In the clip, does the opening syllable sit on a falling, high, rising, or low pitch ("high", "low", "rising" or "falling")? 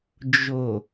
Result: low